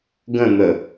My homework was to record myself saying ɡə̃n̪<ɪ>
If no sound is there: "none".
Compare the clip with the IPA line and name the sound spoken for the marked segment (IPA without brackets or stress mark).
ə